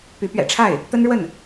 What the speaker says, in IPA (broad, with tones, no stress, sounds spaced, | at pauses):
p y˧˥ p ɥ ɛ̰˨˩ ʈ͡ʂʰ a˥˩ ɪ̯ | t̪ ə˥ n ɻ w ə˥˩ n